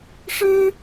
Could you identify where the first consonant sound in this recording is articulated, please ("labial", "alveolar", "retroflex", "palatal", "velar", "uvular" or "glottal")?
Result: retroflex